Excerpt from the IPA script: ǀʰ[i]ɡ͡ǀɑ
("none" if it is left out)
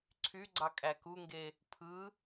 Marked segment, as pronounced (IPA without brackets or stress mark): y